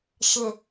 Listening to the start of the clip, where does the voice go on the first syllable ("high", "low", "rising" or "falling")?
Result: low